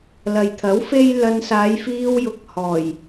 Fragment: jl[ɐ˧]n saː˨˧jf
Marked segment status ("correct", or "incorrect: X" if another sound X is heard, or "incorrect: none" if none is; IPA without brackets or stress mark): correct